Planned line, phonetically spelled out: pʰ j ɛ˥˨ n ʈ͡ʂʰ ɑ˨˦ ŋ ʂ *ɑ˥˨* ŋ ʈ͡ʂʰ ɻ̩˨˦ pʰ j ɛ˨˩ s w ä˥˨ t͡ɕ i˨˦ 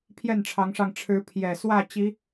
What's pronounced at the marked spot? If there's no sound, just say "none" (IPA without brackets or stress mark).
ɑ˧